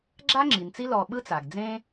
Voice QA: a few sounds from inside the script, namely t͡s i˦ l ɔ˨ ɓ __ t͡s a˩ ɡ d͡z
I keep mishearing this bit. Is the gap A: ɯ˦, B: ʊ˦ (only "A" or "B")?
A